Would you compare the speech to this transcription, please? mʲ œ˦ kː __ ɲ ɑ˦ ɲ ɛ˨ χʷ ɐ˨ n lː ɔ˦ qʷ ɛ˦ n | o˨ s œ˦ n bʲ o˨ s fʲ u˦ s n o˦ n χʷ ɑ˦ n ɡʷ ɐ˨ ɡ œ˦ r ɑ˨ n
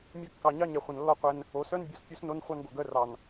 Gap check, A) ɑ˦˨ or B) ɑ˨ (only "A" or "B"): B